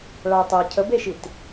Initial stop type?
plain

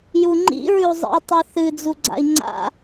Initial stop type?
click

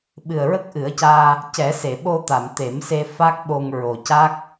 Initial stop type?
implosive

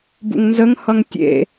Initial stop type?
plain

